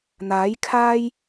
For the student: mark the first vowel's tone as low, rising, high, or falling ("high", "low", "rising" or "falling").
rising